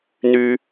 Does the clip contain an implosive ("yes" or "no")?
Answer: no